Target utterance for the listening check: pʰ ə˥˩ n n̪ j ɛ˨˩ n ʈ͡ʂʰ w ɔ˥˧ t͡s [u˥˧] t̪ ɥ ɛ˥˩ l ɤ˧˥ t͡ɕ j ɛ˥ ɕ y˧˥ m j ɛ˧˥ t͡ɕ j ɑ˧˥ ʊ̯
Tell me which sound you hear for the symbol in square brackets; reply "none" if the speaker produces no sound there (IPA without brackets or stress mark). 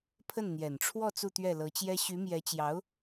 u˥˧